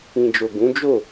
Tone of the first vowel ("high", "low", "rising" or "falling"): low